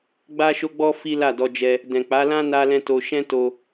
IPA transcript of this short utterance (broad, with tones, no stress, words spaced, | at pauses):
ɡ͡ba˦ʃo˦ɡ͡bɔ˦ fi˦la˦˨dɔ˧d͡ʒɛ˧ | dɛ̃˨k͡pa˨˦lã˦ na˦lɛ̃˦to˧ ʃɛ̃˦ to˧